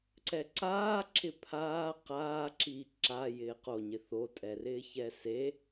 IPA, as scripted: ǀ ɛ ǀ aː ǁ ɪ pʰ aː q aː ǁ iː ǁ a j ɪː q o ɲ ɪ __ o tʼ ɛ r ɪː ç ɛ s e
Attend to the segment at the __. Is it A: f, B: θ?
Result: B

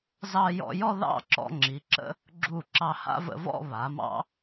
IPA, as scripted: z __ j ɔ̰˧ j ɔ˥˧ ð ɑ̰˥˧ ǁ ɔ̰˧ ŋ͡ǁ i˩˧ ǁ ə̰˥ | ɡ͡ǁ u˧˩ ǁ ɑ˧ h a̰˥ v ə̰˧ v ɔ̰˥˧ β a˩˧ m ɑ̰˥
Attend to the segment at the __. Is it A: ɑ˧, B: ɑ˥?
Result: A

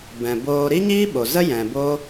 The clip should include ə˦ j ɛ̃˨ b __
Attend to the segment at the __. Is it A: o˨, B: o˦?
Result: B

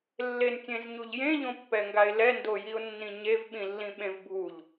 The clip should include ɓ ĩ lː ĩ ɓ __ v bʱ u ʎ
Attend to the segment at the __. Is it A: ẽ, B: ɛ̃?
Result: A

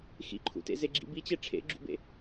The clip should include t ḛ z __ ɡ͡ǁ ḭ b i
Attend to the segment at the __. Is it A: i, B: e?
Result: B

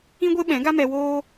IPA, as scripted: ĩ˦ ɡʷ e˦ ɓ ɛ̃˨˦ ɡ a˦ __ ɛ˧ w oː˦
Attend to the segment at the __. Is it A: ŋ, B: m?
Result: B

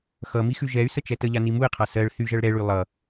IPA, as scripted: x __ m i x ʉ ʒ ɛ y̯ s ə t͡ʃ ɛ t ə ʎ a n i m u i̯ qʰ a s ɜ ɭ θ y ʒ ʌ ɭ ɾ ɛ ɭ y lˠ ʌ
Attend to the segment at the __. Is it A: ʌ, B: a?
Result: A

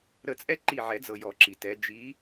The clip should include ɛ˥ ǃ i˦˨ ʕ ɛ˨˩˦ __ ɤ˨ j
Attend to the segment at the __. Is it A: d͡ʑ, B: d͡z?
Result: B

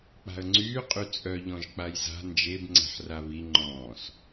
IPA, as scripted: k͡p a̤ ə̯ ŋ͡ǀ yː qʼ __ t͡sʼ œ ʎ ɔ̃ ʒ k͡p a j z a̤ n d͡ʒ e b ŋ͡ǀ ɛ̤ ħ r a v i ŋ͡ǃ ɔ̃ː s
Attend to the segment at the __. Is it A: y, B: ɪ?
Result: A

